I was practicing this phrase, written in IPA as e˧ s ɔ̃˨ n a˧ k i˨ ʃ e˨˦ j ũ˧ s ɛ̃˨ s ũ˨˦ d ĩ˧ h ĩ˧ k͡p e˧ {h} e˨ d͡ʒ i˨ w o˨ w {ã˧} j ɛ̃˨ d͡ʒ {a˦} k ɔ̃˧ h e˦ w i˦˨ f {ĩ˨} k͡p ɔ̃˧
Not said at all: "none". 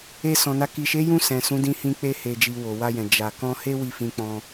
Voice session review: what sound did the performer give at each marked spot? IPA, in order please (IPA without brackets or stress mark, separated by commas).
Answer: h, a˧, a˧, ĩ˧